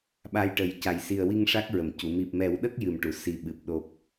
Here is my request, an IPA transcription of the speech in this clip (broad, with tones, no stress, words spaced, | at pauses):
ɓa˧jʈə˨˩˦j ca˨˩˨jsi˨˩ə̯wi˧ŋ ʂa˦˥k̚ ɹə˨˩˨mcu˨˩˨ mi˨˩p̚mɛ˨˩˦wɗə˦˥k̚ jɨ˨˩mʈu˨˩˨ si˨˩ɓɨ˨˩p̚ ɗo˨˩p̚